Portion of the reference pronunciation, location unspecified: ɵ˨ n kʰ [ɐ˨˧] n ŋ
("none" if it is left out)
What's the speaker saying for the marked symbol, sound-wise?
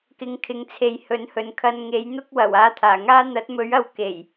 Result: ɐ˧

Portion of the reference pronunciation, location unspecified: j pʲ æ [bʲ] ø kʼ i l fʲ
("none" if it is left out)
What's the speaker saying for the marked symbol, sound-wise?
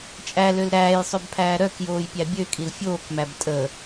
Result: bʲ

